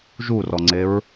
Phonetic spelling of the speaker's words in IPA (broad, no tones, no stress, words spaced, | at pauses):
ʒurɔŋ͡ǀeɹ